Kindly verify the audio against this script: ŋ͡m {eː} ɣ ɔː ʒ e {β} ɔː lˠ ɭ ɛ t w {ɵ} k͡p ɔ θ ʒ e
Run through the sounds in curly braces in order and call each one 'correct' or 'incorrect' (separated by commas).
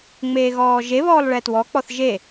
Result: correct, correct, incorrect